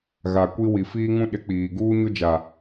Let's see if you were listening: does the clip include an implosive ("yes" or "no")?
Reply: yes